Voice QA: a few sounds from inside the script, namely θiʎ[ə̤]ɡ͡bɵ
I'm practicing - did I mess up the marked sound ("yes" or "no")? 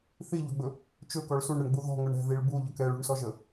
yes